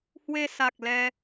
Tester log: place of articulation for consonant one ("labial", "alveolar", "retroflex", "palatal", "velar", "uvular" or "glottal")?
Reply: glottal